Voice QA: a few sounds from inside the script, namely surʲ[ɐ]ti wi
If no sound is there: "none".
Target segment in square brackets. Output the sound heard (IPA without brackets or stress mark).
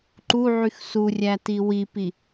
æ